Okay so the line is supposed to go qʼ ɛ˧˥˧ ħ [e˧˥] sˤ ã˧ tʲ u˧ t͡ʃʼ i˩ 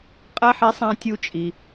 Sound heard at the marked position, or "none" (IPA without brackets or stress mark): e˧˥